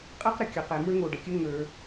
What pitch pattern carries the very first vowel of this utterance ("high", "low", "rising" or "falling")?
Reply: high